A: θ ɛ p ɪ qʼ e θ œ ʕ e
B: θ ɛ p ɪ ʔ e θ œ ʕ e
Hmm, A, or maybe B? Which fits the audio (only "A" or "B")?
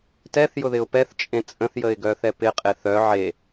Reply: A